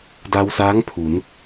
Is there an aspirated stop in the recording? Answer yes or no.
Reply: yes